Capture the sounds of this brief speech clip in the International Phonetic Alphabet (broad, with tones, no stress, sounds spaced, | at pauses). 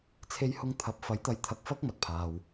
t͡sʰ e˧ j h ʊ˧ ŋ t̪ʰ ɐ˨˥ p̚ f ɐ˨˥ j t̪ ɐ˨˧ j t̪ʰ ɐ˧ k̚ f ɐ˥ k̚ m ɐ˨ t̚ pʰ aː˨ w